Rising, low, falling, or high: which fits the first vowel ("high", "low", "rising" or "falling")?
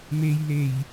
low